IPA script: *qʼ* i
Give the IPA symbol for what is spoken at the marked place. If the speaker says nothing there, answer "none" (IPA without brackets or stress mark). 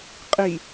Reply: qʼ